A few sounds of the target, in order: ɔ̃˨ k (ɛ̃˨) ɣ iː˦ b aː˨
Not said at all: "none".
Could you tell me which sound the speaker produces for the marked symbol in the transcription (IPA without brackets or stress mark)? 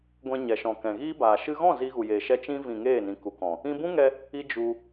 ɛ̃˨